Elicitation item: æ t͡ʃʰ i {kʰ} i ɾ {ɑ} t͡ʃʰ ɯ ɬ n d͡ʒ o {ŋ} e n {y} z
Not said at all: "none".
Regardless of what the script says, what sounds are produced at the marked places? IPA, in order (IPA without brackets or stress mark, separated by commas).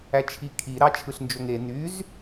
kʰ, ɑ, ŋ, y